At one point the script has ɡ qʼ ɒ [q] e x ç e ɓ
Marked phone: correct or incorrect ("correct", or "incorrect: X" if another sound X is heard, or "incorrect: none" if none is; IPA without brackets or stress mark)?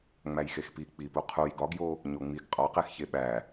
correct